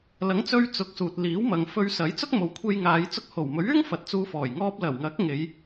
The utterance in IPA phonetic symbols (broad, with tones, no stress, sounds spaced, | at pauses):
l ɐ˨˥ ŋ t͡s ɵ˧ ɥ t͡s ʊ˨˥ k̚ s uː˨ t̚ l iː˨˥ w m ɐ˨ ŋ f ɵ˧ ɥ s ɐ˨˥ j t͡s ʊ˥ k̚ m o˨ w kʷʰ e˧ j ŋ aː˨˧ j t͡s ʊ˧ k̚ h o˨˩ w m ɵ˨˥ ɥ yː˥ ŋ f ɐ˨˥ t̚ t͡s uː˧ f ɔː˨˩ j ŋ ɔː˧ p̚ l ɐ˨˩ w ŋ ɐ˨˥ k̚ ŋ e˨˧ j